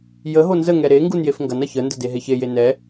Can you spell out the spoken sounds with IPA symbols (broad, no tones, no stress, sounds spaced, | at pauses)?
j ə ɦ o n z ə ŋ ɛ ɾ e ŋ ɡ u n j e f ŋ ɡ ɐ n ɐ ç ə n d ə d e ɦ e ç e j e n ɛ